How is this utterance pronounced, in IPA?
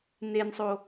n e n sˤ o

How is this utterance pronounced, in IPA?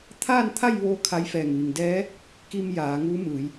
t̪ʰ aː˥˨ n t̪ʰ a˥˨ j ʋ oː˧ kʰ a˧˥ j f ɛː˧˩ ŋ ʋ i˩ ŋ d ɛː˧˥ | k i˧ m j aː˩˧ ŋ uː˧˥ m ɯː˩˧ j

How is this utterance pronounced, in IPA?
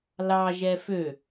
l ɑ ʒ ɛ f ø

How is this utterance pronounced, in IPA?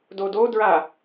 d o d o d ɹ a

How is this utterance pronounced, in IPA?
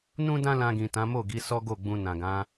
n ũ˦ d ã˦ l ã˧ ɡ ĩ˨ t ã˨˦ m o˦˨ ɡ i˨˦ s ɔ˦ ɡ o˦˨ ɡ͡b ũ˧ n ã˨ ɡ ã˨˦

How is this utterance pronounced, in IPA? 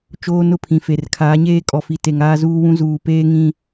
t͡ʃ oː˦ n ʊ˦ pʰ ĩ˨ f e˨ r kʰ aː˨˦ ɲ eː˦ kʼ ɔ˨ f i˨ t e˨ ŋ aː˦ z uː˦ w ũ˦ z uː˨ p eː˦ ŋ ĩ˦

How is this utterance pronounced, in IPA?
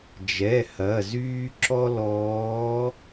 d͡ʒ ɛ˩˧˩ h ɐː˩˧˩ z yː˥ ǁ ɔ˥ l ɔː˨˦

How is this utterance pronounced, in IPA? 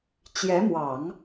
t͡ɕ j ɛ˧˥ m w ɑ˨˩˦ ŋ

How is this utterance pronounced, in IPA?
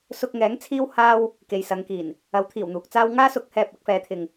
s ʊ˧ k̚ ŋ ɛː˨˥ ŋ t͡sʰ iː˥ w h aː˥ w | k e˨ j s ɐ˨˧ ŋ k iː˨˩ n | ɐ˨˥ w t̪ʰ iː˨˩ w n̪ uː˨ k̚ t͡s aː˥ w ŋ aː˥ s ʊ˨˥ k̚ h ɛː˧ p̚ ɐ˨˥ k̚ f ɛː˨˥ t̪ʰ ɪ˨ ŋ

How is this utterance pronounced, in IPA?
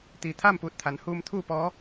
t̪ iː˩ t̪ʰ aː˥˨ m p uː˧˩ t̚ t̪ʰ a˩˧ n h uː˧ m t̪ʰ uː˥˨ p ɔː˧˥

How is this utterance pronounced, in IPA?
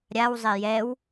ɾʲ a w zˤ e j ɛ w

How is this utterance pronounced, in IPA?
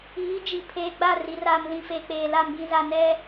iː˨˦ d͡ʒ i˨ pʰ eː˨ ɡ͡b a˦˨ r i˨ r aː˨ m l ĩ˨ f e˨ k͡p eː˨ l a˨ m ɡ ĩ˨ z a˨ n ɛ˦

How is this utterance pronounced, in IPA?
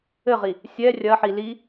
ɘ ʁ i | sʲ ɛ rʲ ɐ ħ i l i

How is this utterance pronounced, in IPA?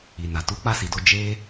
i˨ n a˨ t u˨˦ k͡p a˦˨ s i˨ d o˧ d͡ʒ e˦

